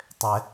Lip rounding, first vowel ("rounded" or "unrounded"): unrounded